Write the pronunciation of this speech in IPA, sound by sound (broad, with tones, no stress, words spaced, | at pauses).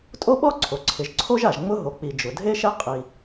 tʼo˥ɓɔ˥ǀʰo˩ ǀʰɪ˩ʒǀʰo˥ʒa˩ʒ ŋ͡mʊ˥ɦo˩k͡pi˩ d͡ʒʊ˩dʱe˥ʃɛ˥ qʼi˩